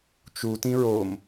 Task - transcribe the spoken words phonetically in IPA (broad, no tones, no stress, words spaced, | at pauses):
t͡ʃu tĩɹom